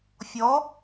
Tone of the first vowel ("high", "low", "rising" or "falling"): rising